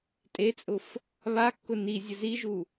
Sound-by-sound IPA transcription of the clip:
tʼ e t͡sʼ ʊ f | β a kː ʊ n i zʲ ə z i ʒ u

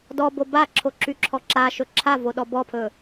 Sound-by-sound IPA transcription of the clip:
d ɔ b o b a ǁʰ o ǁ y ǁʰ ɔ ǁ a ʃ ɵ ǁʰ a v o ɗ ɔ b ɔ pʰ ɵ

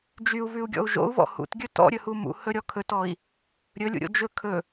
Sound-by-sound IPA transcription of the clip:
d͡ʒ y u̯ v ʉ u̯ ɡʲ ɔ̰ u̯ ʒ o̰ u̯ v ɔ̰ h ṵ t ɡʲ ɵ t ɔ̰ ɾʲ ɵ h u m ṵ h ɵ ɾʲ ɔ kʰ ɵ t ɔ i̯ | ɾʲ ɵ lʲ ṵ ɾʲ o̰ d͡ʒ ɵ kʰ ɵ

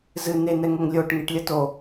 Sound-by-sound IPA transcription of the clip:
z ɨ n e n ɛ ŋ o ŋ lʲ o ʈ ŋ e ʈ lʲ ɐ t o

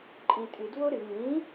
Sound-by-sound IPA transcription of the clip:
ǃʼ ĩ tʼ ɨ d w o ɾ ɨ ŋ ĩ

